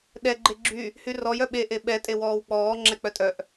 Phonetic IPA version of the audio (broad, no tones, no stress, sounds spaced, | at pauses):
ɗ ɛ ɡ͡ǃ e ɡ͡ǁ y | h y r ɔ j œ ɓ e ʔ e ɓ ɛ tʼ e w ɔː w k͡p ɔː ŋ͡ǁ ɛ k͡p œ tʼ œ ʔ